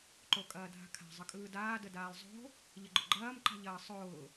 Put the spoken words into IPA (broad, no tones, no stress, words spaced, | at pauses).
ǃokʼɐːdʱa̤kʰa̤ zˤəkʼɯːdaː dədaːlˠzˤo̤ | ʎəɡ͡ǃʊɡ͡ǃɐːm ǃa̤ʎɐːsˤʊː